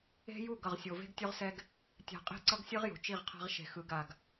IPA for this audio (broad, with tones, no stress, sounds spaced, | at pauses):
e̤˦ j u˦˨ ɡ ʌ˨ ʁ sʲ o˨ v e̤˦ ɡ tʲ o˦ ʁ s ɛ˦ ɡ | tʲ a̤˨ qʼ e̤˦˨ ǀ ʌ˦ ɡ sʲ ɯ˦ ʁ j o̤˨ t͡ʃ i˦˨ ʁ qʰ a̤˦ ʁ ʃ e̤˨ x ɯ˨ ɡ a˨ ɡ